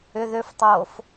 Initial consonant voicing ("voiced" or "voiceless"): voiced